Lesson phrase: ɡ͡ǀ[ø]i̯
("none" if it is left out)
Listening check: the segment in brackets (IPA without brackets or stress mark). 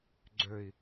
ø